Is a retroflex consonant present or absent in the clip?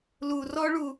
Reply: present